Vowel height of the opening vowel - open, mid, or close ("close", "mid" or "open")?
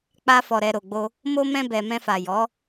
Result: open